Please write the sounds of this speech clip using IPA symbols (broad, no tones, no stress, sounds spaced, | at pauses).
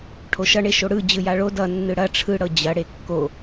ʈʰ o ʃ ʌ ɳ e ʃ o ɽ ɯ d͡ʑ ɯ j a ɭ o d ʌ nː ɯ ɽ ɐ ʈ͡ʂʰ ɯ ɽ ɤ d͡ʑ ɐ ɽ e kː o